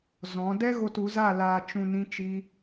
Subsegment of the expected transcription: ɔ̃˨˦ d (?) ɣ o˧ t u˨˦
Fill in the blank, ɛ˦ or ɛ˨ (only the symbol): ɛ˦